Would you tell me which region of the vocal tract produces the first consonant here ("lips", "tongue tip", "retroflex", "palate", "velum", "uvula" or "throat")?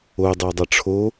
tongue tip